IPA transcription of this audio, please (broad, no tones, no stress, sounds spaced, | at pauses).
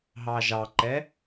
ɦ ɑ ʒ ɑ ǃ ɛ